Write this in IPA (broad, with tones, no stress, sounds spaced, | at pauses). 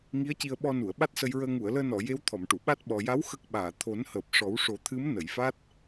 ŋ i˧˥ ə̯ c i˧ ə̯ ɓ ɔ˧ n u˨˩˨ ə̯ ɓ a˦˥ t̚ s ə˧ j ɹ əː˧ ŋ u˨˩˨ ə̯ l əː˧ n ɔ˨˩˨ j e˧˥ w t̪ʰ ɔ˨˩˨ m ʈ u˨˩˨ ɓ a˦˥ t̚ ɓ ɔ˨˩ j a˧˥ w x ə˦˥ k̚ ɓ aː˨˩˨ t̪ʰ o˨˩˦ n h əː˨˩ p̚ ʂ ɔ˨˩˦ w ʂ o˨˩˦ t̪ʰ ɨ˧˥ m n ə˨˩˨ j f a˦˥ t̚